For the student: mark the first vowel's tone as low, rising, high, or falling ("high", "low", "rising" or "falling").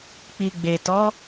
low